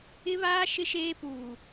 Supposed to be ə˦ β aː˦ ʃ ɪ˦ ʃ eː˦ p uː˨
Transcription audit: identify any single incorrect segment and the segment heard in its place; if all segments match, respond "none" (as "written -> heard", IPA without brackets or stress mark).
ə˦ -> ɪ˦